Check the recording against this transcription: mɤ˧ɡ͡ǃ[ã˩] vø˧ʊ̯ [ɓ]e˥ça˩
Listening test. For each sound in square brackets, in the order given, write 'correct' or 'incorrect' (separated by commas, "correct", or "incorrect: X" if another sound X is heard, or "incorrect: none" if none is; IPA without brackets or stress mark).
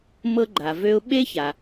incorrect: a˩, correct